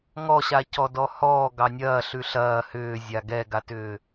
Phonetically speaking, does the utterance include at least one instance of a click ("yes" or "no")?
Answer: no